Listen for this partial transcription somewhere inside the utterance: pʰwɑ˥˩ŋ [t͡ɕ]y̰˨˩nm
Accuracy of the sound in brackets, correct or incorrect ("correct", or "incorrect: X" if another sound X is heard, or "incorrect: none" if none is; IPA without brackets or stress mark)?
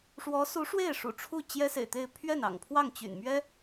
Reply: correct